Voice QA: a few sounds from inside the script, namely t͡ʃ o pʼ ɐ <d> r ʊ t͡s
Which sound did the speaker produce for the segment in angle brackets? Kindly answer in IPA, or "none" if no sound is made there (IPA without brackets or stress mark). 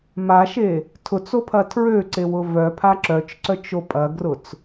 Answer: ɡ